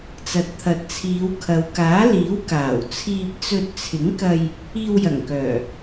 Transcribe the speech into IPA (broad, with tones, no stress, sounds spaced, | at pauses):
t͡s ɐ˨ t̚ t̪ʰ ɐ˨ t̚ t͡sʰ iː˨˧ w kʰ ɐ˨ w k aː˨˥ l iː˨˥ w k aː˨˩ w t͡sʰ iː˧ p̚ t͡s ɵ˧ t̚ t͡sʰ ɪ˨˥ ŋ k ɐ˧ j | iː˧ w j ɐ˨˩ ŋ k œː˨˩